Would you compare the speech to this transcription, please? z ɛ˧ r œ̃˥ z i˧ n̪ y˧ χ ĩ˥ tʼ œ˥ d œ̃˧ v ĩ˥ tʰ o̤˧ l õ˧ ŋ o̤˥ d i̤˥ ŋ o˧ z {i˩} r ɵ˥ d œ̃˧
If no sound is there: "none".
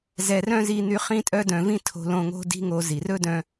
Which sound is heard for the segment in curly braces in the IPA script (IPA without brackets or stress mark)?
i˩